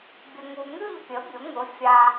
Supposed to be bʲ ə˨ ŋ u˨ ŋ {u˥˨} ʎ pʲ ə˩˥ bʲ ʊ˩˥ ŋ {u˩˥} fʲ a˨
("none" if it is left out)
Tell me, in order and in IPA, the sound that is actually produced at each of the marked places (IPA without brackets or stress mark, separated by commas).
ʉ˥˨, ʊ˩˥